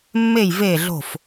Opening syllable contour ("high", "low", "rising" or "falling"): falling